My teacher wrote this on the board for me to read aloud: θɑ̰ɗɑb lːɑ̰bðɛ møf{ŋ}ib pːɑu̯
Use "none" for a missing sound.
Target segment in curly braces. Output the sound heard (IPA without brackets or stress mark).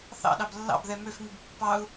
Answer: ŋ